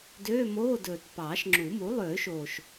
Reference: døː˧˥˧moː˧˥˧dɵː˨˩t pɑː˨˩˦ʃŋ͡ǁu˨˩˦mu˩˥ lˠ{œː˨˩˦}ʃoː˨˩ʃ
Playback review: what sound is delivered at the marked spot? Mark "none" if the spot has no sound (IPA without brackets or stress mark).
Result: øː˨˩˦